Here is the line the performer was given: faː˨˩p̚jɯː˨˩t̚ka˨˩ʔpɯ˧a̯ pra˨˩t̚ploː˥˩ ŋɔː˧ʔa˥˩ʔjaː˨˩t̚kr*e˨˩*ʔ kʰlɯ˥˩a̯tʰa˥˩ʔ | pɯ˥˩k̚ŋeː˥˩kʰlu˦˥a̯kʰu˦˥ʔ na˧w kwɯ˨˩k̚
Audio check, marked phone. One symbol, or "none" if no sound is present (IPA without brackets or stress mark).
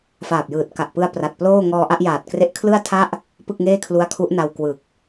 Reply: e˦˥